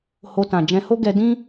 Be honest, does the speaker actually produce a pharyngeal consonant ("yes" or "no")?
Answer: no